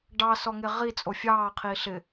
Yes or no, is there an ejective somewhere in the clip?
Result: yes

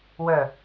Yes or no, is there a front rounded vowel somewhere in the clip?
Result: yes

